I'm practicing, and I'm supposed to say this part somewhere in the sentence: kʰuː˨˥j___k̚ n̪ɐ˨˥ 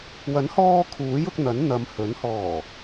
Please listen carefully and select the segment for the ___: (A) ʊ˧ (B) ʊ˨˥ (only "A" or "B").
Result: A